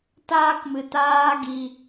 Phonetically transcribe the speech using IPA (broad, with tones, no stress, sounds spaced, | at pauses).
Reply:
t aː˧ k m ɨ˨ t aː˧ ɡ i˧